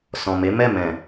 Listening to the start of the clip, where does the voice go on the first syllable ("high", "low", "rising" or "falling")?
low